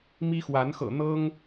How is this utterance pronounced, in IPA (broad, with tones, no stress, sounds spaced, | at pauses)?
m i˦ x w a˨˦ n x ɤ̰˨˩ n̪ ɤ˦ ŋ